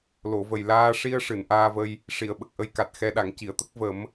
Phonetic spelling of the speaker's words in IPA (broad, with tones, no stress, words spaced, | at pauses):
lo˨˩˨və˨˩j laː˧ʂi˧ə̯ʂɨ˨˩˨n ʔaː˧və˧j | ʂi˨˩˨ə̯ɓə˨˩k̚ʔə˧j ka˨˩t̚xɛ˧ɗa˨˩˨ŋ ci˨˩˨ə̯t̪ə˦˥k̚ və˨˩˦m